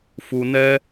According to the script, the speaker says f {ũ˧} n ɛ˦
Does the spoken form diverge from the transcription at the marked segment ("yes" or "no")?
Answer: yes